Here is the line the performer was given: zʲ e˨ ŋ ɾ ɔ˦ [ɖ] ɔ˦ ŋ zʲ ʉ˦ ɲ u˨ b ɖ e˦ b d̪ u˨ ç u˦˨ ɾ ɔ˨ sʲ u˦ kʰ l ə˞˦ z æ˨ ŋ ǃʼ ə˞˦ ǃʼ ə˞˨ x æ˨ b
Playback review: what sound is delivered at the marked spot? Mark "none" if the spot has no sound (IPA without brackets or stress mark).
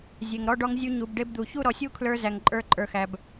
ɖ